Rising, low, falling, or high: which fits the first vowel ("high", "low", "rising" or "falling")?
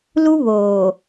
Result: high